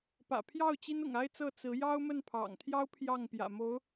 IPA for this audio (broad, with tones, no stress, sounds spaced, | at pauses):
p ä̰˨˩ pʰ j ɑ˥˩ ʊ̯ t͡ɕ i˥ n ʊ̰˨˩ ŋ a˥ ɪ̯ t͡s ɤ˥˩ t͡s ɹ̩˧˥ j ɑ˥ ʊ̯ m ə˥˩ n pʰ ɑ̰˨˩ ŋ t̪ʰ j ɑ˥ ʊ̯ pʰ j ɑ˥˩ ŋ p j ä̰˨˩ m o˧˥ ʊ̯